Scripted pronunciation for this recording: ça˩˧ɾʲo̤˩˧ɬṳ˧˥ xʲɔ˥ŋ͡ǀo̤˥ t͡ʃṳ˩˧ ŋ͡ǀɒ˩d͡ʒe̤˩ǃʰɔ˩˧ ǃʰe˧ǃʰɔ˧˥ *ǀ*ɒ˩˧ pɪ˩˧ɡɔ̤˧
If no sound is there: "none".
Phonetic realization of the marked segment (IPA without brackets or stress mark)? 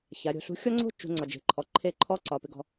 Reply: ǀ